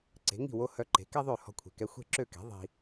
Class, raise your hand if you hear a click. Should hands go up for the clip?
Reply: yes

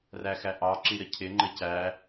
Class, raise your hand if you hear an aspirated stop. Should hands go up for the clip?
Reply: yes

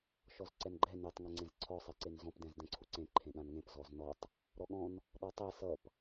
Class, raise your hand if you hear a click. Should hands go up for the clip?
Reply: yes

